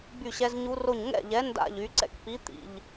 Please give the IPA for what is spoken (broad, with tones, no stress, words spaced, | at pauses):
by˥˨ɕɛ˦˥zɲu˦˥ro˥˨ɲ ŋɛ̰˥˨ʎɛ˨˥ nda̰˥˨ʎy˨˥ ǀɛ̰˥˨kpi˨˥ t̪ḭ˨ʎ